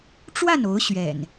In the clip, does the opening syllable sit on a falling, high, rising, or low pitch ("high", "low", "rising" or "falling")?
falling